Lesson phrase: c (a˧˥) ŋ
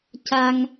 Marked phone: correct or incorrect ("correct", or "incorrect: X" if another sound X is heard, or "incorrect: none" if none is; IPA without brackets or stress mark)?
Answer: incorrect: a˧